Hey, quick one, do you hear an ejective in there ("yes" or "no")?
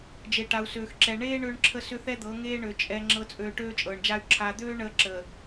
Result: yes